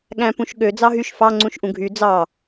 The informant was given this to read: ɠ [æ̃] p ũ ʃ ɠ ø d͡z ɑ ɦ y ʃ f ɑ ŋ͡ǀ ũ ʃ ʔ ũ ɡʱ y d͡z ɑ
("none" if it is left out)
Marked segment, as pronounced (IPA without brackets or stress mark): æ̃